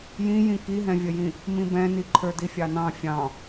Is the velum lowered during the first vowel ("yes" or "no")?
yes